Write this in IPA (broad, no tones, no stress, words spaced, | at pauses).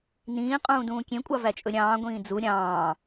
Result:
nĩː qʼũːdũːkʲẽkʷʼɑ væt͡ʃʼɵɾʲɑ̃ː ɡʷĩːd͡zu ɾʲɑ̃ː